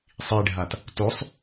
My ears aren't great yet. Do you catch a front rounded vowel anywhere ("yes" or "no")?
no